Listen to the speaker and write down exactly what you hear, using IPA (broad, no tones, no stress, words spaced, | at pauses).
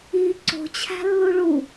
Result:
i ǀo̤t͡ɕʰæ̤ lːuɭu